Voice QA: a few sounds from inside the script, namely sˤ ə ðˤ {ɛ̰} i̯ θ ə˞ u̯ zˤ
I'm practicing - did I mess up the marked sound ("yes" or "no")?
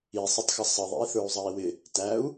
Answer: no